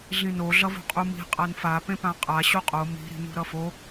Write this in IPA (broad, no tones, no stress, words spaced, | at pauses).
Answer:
ɮĩno ɮʌvo̤qʼumi̤ qʼanfa pẽpãqʼa ɕuqʼo mi̤ ɾi̤nṳɾʌfo